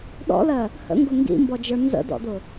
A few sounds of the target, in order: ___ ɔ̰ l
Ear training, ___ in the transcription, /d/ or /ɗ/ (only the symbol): ɗ